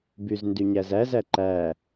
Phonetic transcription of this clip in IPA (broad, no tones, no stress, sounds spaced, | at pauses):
b y z n d y ɲ æ z æ z æ ǃ æ